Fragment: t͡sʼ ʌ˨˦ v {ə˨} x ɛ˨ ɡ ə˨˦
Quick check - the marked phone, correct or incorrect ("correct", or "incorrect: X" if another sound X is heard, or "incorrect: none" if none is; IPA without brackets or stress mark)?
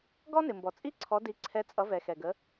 incorrect: ɛ˨